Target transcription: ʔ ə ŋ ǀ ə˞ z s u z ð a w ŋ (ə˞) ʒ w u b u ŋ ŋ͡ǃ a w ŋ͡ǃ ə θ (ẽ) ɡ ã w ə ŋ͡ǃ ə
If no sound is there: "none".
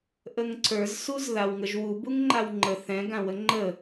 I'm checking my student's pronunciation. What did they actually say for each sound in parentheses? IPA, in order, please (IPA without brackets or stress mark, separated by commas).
ə, ɛ̃